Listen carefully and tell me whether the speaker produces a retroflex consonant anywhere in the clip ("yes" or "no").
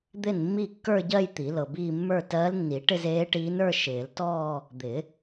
yes